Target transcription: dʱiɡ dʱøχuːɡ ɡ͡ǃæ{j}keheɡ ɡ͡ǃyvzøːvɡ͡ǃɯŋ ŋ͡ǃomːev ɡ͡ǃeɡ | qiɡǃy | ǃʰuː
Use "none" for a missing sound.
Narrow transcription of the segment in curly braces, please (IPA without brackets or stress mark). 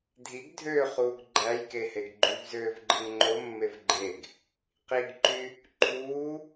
j